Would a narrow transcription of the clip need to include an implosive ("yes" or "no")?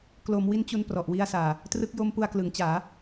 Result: no